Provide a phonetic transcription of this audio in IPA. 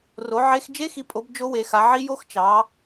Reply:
r o˨˦ ʕ e˦˥ x d͡ʒ e˦˥ x i˨˦ pʼ o˨˦ b d͡ʒ o˦˥ w e˨˦ x a˨˦ ʕ i˦˥ j o˦˥ x t͡ʃ ɑ˨˦

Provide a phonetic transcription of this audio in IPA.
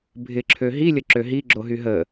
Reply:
bʱ ɪ ǁʰ ø ɦ i lʲ ə ǁ ø ɦ i ɡ͡ǁ o ɦ y ɦ ə

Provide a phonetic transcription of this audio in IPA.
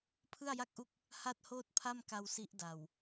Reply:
pʰ ɯ˥˩ a̯ j a˥˩ k̚ ʔ u˦˥ k̚ | h a˥˩ t̚ h oː˥˩ t̚ pʰ a˥˩ m k a˧ w s i˦˥ ʔ d a˨˩ w

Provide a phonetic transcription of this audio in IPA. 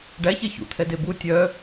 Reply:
ɖ æ ç e ç ṵ t̪ʰ ɛ d e b u tʲ œ

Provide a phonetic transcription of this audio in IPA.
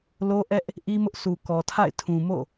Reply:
l o˦ ʔ ɛ˦ ʔ | ʔ i˦ m ʊ˦ ʔ sʰ u˨ k ɔ˨ tʰ a̰˦˨ ɪ̯ tʰ ũ˨ m o̰˦˨

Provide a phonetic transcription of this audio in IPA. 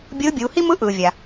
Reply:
bʲ ɯː˧˥ bʲ uː˩˧ h i˥ m ɯ˧˥ ʔ ɯː˩ vʲ a˩

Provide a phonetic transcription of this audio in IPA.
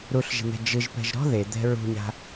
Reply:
ɾ u ɬ ʒ e̤ n̪ ɛ̤ d͡ʒ ɯ ʒ p ɛ̤ ʒ ɾ ɔ̤ ð e d̪ ɛ̤ ɹ ṳ ɲ a̤

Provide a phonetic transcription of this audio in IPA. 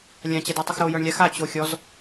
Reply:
lʲ ã t͡ɕ ɛ d a tˤ ɨ x ɾ o j œ ɳ lʲ a x a t͡ɕ o xʲ ɔ z

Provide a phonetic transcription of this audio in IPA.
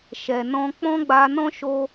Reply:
ʃ ɛ˨ n ɔ̃˧ k͡p ɔ̃˦ ɡ͡b a˧ n ɔ̃˦ ʃ o˧

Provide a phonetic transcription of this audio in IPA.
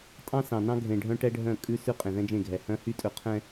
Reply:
tʼ ɑ̃˦ s ɑ̃˨ n ɑ̃˦ ɡʱ ẽ˨ ɖʱ œ̃˦ ʈ ɛ˦ ɖʱ œ̃˦˨ kʼ ʉ˦ s ʉ˦ qʼ ẽ˨ ð ɛ̃˦ d͡ʒ ẽ˦˨ ɡʱ ɛ˨ h œ̃˦ h y˦ tʼ ɵ˨ qʰ ɛ̃˨

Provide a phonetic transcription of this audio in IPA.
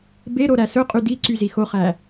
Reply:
b e ɾ o ɾ æ s ɵ qʼ y d i ǀ y z i x o χ æ

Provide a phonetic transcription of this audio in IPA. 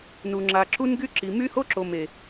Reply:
n u˨ ŋ͡ǁ a˨ ǁ u˦ n ɡ y˦ ǁ i˨ m y˦ h o˦ ǁ o˨ m e˨

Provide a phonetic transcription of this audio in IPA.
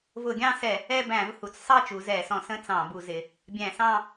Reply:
v ʊ˧˩˧ ɡʲ ɑ̃˥˧ s ɛ˧˩˧ | ɛ˥˧ b æ̃˧˩˧ v h u˩˧ t͡s sˤ ɑ˥˧ t͡ʃ u˩˧ z ɛ˧˩˧ s ɔ̃˧˩˧ s ə̃˥˧ t͡s ɑ̃˧˩˧ b u˧˩˧ z ɪ˩˧ | bʲ æ̃˧˩˧ s ɑ̃˥˧

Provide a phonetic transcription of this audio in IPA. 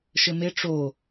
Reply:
ʃ ɘ m e ʈ͡ʂ o

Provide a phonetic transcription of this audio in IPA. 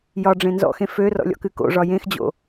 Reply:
j ɒ ɖ͡ʐ ẽ n z ɔ̰ x ẽ f ø r ɔ̰ lʲ ɔ̰ k ɨ k o̰ ʐ ɒ j ẽ x d͡ʑ o̰

